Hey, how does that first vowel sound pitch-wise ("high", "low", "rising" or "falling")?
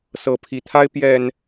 rising